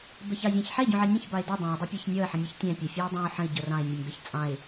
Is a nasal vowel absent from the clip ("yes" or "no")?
no